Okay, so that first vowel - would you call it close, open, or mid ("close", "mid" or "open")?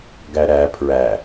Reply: open